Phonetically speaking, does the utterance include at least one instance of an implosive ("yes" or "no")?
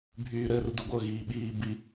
yes